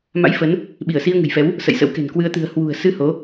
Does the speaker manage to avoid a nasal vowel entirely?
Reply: yes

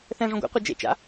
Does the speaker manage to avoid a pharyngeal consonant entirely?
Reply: yes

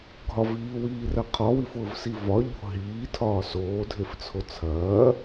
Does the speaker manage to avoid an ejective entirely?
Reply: yes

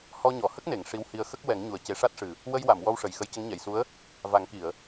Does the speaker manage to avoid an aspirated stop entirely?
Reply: yes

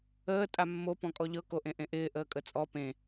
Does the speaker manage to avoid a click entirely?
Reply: yes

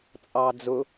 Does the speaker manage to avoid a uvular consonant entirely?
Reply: yes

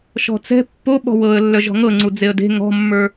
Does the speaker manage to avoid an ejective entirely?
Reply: yes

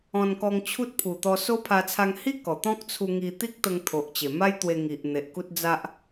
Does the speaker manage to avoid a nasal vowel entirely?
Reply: no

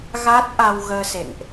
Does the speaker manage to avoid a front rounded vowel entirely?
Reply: yes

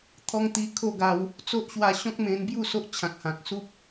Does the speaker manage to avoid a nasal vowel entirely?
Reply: no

